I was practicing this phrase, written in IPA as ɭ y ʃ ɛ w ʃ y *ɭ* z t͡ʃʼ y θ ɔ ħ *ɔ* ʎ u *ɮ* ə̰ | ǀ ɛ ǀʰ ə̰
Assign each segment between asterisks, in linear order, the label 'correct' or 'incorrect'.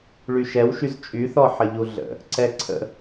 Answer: incorrect: none, incorrect: ə, correct

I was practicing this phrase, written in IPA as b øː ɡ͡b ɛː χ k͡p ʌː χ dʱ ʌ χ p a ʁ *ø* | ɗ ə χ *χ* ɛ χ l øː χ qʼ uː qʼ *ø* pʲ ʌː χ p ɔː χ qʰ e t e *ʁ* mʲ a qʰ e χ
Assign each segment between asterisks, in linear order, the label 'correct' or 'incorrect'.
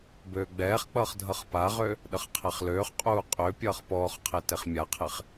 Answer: correct, incorrect: qʰ, correct, incorrect: χ

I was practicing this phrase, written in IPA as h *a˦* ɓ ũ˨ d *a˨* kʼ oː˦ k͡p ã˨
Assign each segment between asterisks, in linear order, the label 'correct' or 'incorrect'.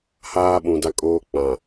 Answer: incorrect: aː˦, incorrect: a˦

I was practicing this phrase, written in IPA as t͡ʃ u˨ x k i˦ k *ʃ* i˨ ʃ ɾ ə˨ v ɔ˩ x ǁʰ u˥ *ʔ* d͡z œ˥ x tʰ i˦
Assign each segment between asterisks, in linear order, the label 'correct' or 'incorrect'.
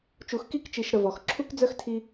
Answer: incorrect: t͡ʃ, incorrect: k

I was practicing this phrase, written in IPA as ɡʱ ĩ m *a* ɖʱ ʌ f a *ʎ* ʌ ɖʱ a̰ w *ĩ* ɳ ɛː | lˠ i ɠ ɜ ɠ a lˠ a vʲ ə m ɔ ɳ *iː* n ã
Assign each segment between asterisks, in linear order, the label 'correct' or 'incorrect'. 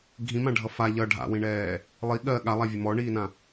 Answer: incorrect: ã, correct, correct, correct

